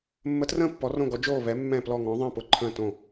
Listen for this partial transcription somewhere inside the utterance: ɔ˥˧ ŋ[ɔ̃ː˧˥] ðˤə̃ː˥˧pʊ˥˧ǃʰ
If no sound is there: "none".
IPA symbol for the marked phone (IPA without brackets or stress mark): ɔ̃˧˥